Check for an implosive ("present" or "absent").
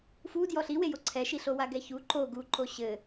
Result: absent